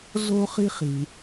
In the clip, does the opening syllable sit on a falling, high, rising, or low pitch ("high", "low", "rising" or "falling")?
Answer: high